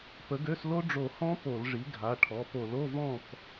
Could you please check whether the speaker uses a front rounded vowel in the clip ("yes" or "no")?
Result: yes